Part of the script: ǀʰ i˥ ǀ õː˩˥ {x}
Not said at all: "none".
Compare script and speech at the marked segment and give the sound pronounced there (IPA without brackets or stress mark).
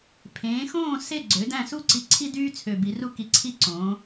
none